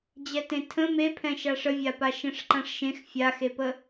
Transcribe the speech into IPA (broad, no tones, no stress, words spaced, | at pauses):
d͡ʑɛtẽtʰə̃ mepʰɛ̃ ʃaʂəvʲapa ʃɛ̃ʂǃãʂʃẽx fʲaxepə